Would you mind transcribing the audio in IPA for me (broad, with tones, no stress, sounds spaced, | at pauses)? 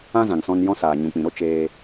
ã˦ z ã˨ ŋ s ɔ̃˧ n j ɔ̃˦ s aː˨ ɲ ũ˨ k͡p ĩ˨ ɾ o˦ t͡ʃ eː˧